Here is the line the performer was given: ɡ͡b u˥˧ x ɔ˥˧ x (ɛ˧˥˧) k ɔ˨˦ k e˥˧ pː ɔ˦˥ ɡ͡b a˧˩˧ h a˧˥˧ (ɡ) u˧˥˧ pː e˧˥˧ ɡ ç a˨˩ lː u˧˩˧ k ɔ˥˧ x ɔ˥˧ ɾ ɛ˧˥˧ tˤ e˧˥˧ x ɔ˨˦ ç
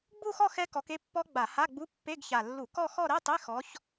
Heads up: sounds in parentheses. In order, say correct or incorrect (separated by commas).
incorrect, incorrect